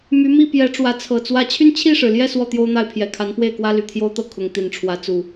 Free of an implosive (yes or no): yes